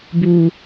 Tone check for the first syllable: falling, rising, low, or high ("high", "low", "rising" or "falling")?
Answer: low